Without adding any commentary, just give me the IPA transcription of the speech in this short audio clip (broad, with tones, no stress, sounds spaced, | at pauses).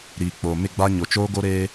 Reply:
ɾ iː˨ k͡p oː˨ m ɪ˦˨ ɡ͡b a˦ ɲ o˨ t͡ʃ oː˦ ɡ o˦ ɾ eː˦